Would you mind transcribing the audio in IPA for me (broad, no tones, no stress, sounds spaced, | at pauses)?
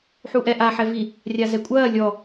ħ u ʔ ɛ ʔ a ħ ɛ v i | rʲ a z ɛ kʷʼ ɐː lʲ ɔ